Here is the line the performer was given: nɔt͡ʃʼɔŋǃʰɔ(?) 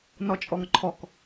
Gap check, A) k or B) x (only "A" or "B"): A